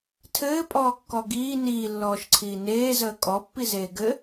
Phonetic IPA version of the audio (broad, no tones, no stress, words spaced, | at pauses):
tʰɘːpʼɔːkːɔ ɡiː niːlːɔːʃǀʰiː neːzəː kʼɔpːizeː ɡɘ